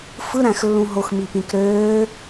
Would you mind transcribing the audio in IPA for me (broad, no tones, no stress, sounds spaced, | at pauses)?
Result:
f ɯ ɾ æ̃ x lː ũ ɦ o x m i p ĩ k ɾ øː